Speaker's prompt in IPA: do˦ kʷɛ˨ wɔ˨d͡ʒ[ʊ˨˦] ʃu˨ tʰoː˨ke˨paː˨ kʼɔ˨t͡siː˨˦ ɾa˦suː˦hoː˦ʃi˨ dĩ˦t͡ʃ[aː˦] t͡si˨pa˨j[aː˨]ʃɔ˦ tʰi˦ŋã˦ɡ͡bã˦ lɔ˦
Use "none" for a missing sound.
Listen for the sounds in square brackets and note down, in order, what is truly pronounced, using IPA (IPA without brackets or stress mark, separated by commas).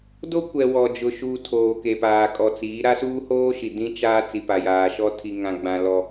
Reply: ʊ˨, aː˦, aː˨